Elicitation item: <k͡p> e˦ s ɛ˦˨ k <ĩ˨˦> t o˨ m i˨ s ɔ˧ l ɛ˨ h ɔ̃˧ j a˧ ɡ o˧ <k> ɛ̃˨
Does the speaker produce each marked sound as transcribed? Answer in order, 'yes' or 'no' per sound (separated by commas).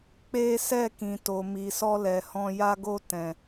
yes, no, no